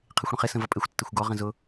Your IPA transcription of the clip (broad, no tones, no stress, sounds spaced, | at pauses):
qʰ ɪ xʷ ɽ ə̃ χ ɪ s ə̃ v ʌ pʼ ɪ xʷ tː ɪ xʷ ɡ ɔ ʁ ə̃ z ʊ